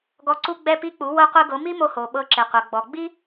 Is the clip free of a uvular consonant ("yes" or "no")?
no